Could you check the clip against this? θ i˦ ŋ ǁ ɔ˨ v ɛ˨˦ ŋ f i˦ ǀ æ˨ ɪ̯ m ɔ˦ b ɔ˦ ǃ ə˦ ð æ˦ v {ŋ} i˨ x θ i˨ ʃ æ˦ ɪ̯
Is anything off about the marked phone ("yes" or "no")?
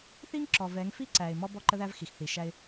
yes